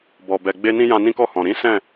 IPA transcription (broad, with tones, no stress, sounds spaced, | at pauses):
b ɔ˨ b ɛ˨ ɡ͡b e˧ n ĩ˧ j ã˧ n ĩ˦ k ɔ˦˨ h ɔ̃˨ ɾ ĩ˨˦ s ɛ̃˦˨